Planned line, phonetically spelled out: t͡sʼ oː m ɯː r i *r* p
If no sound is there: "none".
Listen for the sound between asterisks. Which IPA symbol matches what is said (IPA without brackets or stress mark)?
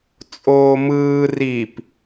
none